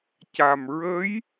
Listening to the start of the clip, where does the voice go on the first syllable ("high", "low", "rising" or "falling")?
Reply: low